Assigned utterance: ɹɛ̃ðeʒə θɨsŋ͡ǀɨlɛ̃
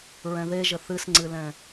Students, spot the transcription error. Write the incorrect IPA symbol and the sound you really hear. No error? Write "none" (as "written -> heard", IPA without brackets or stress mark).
none